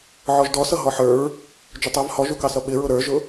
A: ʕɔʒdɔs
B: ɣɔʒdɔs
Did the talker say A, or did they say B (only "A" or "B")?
A